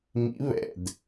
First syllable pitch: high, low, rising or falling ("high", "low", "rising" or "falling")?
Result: rising